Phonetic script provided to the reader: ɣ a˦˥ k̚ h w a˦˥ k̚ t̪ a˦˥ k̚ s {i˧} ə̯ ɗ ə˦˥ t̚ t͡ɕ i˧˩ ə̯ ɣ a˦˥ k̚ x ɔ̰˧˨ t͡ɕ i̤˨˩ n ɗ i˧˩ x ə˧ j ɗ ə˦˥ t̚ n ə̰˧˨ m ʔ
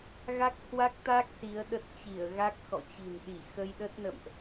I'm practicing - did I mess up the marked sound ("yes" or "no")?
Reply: yes